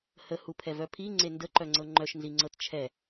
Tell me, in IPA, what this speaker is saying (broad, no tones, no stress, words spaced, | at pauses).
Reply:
həhupʰɛvœ pʰiŋ͡ǀe ndəǃœŋ͡ǀɤ ŋ͡ǃœʃnziŋ͡ǀɤt t͡ʃʰɛ